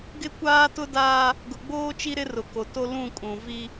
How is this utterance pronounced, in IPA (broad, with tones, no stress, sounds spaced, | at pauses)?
ɡ ɪ˦ kʷ aː˦ t ʊ˦ d aː˦ | ɡ ʊ˨ ɡ͡b oː˦ t͡ʃ i˦ ɾ ɪ˦ r ʊ˨ k o˨ t o˦ l ũ˦˨ kʼ ũ˨ v i˦